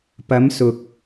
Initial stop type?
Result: plain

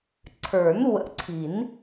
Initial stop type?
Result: click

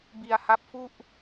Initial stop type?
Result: plain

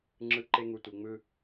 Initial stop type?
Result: click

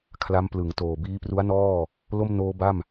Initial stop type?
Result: aspirated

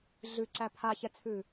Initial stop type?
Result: click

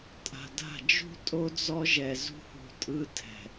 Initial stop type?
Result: ejective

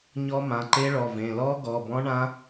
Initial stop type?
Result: click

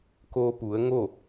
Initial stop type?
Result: plain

